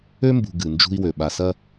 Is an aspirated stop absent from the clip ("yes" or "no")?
yes